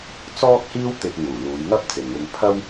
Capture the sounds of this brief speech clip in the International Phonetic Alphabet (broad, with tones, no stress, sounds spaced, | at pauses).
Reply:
t͡s ɔː˥ k̚ h iː˥ w t̪ ɪ˧ k̚ ŋ uː˨˩ l uː˨˧ j ŋ ɐ˥ p̚ t͡s ɪ˨ ŋ w ɪ˧ ŋ pʰ ɐ˥ w